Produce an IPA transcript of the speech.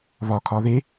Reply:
β ɒ kʰ ɒ ð e

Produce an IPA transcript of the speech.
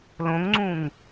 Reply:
l õ ŋ ŋ͡ǀ ũ ŋ

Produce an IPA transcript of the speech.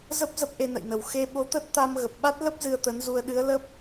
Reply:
z ə˦˥ p̚ z ə˦˥ p̚ ʔ e˧ n ə̰˧˨ j n ə˧˩ w x e˧ ɓ o˨˦ t̪ ə˦˥ t̚ t̪ a˧ m ɣ ə˨˩ p̚ ɓ a˦˥ t̚ l ə˦˥ p̚ z ɨ˧ ə̯ t̪ ə˨˦ n z u˧ ə̯ ɗ ɨ˨˦ ə̯ l ə˦˥ p̚

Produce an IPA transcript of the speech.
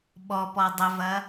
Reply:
ɓ ɔ p ɔ dˤ ə v ɐ

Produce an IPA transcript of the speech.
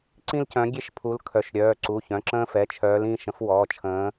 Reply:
ǀ ĩ˦ l c œ̃˨˦ ɡʲ e˦ ʃ pʰ u˨˦ l kʰ œ˩˧˩ ʃ ɾʲ œː˩˧˩ ǀ u˩˧˩ ç œ̃˩˧˩ ǁ ə̃ː˦ f ɛ˩˧˩ t͡ʃʰ œː˨˦ l ĩ˩˧˩ ʃ ə̃˨˦ f w ɔː˩˧˩ t͡ʃʰ ə̃ː˨˦

